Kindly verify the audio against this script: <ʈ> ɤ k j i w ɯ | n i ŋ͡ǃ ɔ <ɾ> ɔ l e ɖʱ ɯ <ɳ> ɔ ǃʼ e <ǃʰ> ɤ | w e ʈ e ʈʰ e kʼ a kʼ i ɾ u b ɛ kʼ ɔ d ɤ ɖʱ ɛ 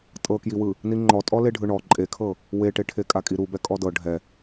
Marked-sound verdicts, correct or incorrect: incorrect: tʼ, incorrect: tʼ, correct, incorrect: kʰ

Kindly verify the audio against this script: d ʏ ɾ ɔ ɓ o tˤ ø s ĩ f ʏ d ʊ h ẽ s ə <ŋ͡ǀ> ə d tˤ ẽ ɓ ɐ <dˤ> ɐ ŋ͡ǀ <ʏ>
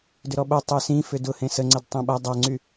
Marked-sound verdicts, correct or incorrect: correct, correct, incorrect: y

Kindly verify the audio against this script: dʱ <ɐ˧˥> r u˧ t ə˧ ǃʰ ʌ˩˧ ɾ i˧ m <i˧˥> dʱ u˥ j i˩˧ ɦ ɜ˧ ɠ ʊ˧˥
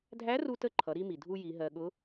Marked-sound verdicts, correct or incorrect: incorrect: æ˧˥, incorrect: i˩

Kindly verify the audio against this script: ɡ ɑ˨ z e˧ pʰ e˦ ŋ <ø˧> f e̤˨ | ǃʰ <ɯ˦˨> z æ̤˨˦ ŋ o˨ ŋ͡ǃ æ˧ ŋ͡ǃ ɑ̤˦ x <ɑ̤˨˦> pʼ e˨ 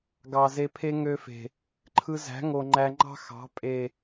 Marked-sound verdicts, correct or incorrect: correct, incorrect: ɯ˧, correct

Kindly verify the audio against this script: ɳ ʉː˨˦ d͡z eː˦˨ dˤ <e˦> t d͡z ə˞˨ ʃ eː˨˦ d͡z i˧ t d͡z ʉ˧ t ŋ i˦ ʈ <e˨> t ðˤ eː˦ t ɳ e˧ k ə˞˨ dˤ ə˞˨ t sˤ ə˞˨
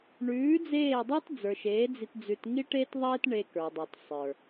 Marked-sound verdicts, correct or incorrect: correct, incorrect: e˦

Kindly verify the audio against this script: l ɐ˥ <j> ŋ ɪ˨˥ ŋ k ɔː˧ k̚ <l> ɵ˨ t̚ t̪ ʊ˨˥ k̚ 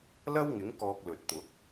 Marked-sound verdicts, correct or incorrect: incorrect: w, correct

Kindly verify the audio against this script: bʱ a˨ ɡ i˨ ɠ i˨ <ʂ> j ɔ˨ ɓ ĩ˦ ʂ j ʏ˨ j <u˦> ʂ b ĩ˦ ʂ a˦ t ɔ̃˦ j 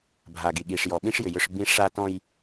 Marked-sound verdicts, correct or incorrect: correct, incorrect: ʏ˦

